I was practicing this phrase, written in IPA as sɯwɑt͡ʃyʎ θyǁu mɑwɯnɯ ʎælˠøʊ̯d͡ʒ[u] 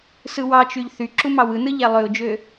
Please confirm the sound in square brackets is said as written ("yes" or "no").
no